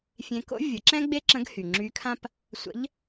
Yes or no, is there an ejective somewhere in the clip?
no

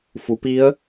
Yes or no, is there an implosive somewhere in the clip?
no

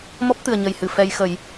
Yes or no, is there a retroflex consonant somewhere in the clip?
no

